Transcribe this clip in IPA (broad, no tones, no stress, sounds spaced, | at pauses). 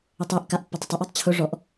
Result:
ʊ tˤ e ʔ k a ʔ pː ɛ tˤ ɪ tˤ ɪ ʔ ɔ tˤ t͡ɕʰ ʊ ʐ ɔ ʔ